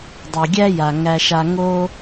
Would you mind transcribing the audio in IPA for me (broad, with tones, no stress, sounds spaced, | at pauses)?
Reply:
dˤ u˩ ɡʲ æ˥ j a˩ ŋ æ˨ ʃ a˨ ŋ o˥